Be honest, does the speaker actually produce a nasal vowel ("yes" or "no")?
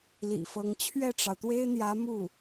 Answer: no